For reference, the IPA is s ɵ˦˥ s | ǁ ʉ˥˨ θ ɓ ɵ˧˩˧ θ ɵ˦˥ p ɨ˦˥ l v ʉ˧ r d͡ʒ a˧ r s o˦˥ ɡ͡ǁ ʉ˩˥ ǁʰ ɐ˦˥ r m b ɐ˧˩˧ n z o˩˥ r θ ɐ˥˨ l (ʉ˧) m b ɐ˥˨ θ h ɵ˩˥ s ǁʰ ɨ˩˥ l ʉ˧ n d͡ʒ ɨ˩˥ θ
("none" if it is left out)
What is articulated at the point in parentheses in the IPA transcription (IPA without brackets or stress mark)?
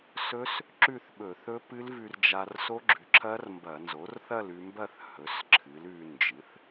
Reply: ʉ˧